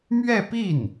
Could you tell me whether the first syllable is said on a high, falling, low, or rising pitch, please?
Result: falling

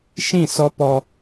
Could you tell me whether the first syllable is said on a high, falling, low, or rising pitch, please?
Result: falling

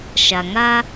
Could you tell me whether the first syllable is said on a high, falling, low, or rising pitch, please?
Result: low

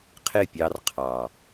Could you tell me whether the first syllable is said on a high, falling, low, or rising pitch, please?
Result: falling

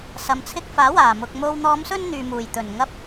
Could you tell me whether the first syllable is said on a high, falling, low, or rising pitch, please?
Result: low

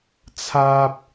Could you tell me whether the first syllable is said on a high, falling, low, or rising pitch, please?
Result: high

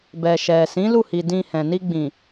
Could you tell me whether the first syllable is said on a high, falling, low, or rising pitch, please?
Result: low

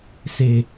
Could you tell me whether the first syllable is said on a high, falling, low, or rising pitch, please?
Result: low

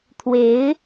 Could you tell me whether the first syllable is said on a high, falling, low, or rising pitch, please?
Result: rising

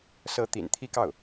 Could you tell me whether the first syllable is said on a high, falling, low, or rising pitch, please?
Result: rising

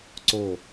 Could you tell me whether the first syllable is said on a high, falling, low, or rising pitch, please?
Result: falling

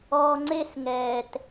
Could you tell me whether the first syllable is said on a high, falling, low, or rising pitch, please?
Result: high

